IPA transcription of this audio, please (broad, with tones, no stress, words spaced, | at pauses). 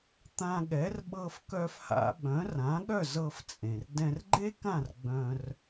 t̪ã˧ɠɛ˩˥r ɓɤ˧f kœ˧fha̰˧ ɓœ̃˩˥rã˩˥ɠœ˥˩ zɤ˧ft͡sʼẽ˩r dɛ̃˧r ɡ͡ǃe˥kã˥˩r ɡ͡bœ̃˧r